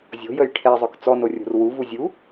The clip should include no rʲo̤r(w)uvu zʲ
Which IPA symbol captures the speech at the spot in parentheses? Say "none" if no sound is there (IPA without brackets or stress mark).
w